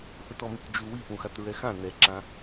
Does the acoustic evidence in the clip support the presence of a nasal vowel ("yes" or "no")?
yes